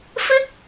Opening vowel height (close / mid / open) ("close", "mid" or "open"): close